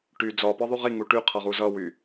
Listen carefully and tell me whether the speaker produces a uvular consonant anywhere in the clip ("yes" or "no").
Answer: yes